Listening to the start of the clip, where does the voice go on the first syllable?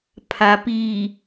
low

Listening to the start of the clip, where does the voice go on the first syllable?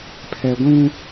low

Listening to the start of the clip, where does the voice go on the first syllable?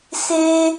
high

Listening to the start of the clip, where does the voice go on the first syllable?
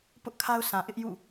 high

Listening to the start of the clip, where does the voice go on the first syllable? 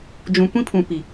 low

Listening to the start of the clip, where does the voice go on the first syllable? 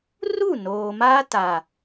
falling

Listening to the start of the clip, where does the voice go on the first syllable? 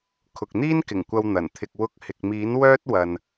low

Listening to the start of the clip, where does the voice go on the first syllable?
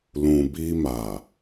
low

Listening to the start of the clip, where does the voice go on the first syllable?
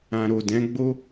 low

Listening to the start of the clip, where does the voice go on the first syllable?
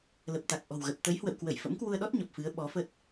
low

